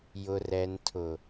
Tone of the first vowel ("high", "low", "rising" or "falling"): low